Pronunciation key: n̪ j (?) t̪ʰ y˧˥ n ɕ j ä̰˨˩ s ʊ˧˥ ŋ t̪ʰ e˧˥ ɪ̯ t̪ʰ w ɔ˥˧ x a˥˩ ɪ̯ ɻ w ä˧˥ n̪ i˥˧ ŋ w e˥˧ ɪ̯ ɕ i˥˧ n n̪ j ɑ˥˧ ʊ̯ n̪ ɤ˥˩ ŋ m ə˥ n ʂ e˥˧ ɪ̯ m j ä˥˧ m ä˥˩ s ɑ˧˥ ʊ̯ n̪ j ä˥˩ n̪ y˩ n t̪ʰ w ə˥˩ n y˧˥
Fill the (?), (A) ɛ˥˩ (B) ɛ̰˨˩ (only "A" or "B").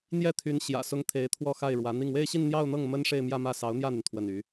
A